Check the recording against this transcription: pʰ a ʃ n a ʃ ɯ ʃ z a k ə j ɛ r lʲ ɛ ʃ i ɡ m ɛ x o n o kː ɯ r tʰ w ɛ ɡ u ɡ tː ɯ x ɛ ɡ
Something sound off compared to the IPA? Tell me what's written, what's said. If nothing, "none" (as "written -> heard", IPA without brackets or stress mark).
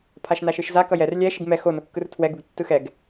ə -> ʌ